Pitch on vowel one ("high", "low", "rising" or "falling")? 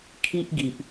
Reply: high